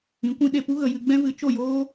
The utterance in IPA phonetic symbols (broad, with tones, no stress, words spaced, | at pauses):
ĩ˨˦kʷĩ˧ ɗe˦˨pu˦ ɣə˨jɨ˧ɡ͡bɛ̃˦vɨ˨˦ t͡ʃo˦˨joː˦